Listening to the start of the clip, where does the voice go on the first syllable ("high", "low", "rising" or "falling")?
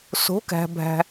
rising